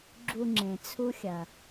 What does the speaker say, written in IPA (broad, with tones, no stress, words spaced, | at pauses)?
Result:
ɡ͡ǁu˧ŋ͡ǁẽ˨ t͡sʰu˦xʲɐ˨